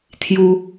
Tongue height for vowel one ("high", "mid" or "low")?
high